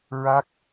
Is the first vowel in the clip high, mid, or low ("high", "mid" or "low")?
low